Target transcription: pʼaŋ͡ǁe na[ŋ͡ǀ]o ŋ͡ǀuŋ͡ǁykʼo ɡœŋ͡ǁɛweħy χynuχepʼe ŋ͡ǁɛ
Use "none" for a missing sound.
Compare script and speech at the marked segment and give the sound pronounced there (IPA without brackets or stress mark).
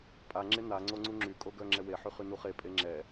ŋ͡ǀ